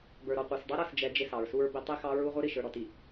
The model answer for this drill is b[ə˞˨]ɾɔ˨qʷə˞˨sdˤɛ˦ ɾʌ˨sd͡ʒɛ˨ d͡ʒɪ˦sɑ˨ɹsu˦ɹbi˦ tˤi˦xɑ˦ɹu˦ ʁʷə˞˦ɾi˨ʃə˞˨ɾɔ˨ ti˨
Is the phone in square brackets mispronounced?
no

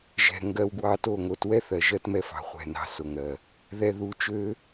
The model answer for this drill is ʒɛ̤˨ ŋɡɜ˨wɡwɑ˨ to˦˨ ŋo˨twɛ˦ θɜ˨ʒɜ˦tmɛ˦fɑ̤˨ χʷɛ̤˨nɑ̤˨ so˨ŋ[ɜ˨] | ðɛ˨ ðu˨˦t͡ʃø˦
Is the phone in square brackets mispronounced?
no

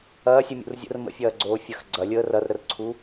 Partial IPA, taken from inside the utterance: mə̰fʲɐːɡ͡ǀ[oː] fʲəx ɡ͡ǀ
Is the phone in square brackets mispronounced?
no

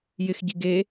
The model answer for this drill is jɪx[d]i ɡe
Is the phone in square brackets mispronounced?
yes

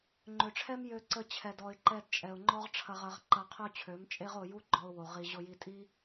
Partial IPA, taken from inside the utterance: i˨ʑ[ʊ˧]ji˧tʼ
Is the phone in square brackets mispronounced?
no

